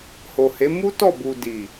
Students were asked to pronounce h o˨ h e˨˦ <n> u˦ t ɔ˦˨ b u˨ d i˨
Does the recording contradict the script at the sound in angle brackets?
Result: yes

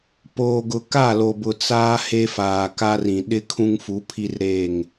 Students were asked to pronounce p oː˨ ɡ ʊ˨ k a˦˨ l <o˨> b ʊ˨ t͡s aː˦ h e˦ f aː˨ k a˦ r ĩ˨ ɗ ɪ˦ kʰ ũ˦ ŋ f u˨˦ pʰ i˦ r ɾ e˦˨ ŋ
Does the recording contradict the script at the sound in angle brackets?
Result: no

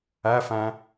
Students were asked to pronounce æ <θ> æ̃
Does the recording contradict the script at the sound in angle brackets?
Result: yes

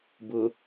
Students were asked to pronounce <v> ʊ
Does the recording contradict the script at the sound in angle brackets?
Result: yes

